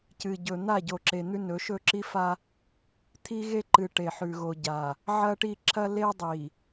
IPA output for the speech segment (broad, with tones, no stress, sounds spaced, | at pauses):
c ɨ˨ ɟ ɵ˨ n̪ a˦˨ ɟ o˨ ǁ e˨ n̪ ʉ˦ n ɵ˨˦ ʃ ɵ˦ ǁ i˦ f a˦ | t̪ʰ i˦ ɣ e˦ ǃ ɨ˨ ʈ e˨ ħ ʉ˨ ɣ o˨ ɟ a˨ | ʕ ɐ˦ ʈ i˦˨ ǁ ɐ˦ l e˦ dˤ i˨